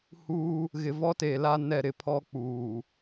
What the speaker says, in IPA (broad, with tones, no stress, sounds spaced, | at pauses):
h uː˦ | ɣ ɪ˨ v ɔ˦ t e˨ l a˦ n ɛ˦˨ ɾ ɪ˦ pʰ ɔ˦ k͡p uː˨